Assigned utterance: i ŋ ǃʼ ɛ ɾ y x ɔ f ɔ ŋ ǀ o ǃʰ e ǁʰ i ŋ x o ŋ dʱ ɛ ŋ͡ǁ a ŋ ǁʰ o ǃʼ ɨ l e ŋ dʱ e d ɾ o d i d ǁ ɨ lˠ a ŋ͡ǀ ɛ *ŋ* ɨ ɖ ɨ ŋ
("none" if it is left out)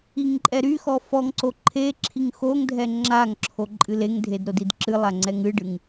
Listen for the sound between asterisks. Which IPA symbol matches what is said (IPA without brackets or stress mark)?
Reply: ŋ